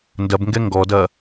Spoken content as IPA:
n d ɐ b ŋ ɡ ɛ ŋ ɡ ɔ d ɐ

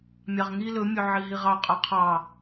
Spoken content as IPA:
mʲ ɑ ʁ ŋ i l ɵ mʲ ɵ ʕ i ɦ i ʁ ɑ qʼ ɒ qʰ ɑ

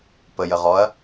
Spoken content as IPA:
p ə j ə ʁ ɔ ɐ̯

